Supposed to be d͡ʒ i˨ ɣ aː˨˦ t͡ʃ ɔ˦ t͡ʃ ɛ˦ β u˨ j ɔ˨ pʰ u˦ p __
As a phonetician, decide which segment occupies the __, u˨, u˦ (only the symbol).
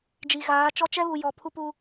u˦